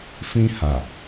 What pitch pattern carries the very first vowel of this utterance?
high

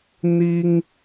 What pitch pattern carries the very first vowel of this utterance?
high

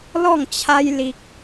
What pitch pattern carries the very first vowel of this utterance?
falling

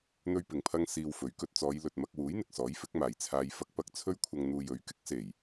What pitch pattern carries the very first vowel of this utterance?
high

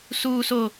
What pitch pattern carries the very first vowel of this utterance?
high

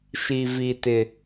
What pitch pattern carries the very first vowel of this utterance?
low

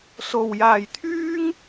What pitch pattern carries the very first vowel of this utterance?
low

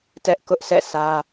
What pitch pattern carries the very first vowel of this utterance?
high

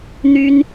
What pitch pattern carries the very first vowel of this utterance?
high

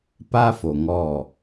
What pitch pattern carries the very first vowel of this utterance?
high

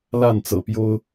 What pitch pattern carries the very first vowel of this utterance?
falling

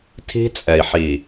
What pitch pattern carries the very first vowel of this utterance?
high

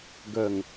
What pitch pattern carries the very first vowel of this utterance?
low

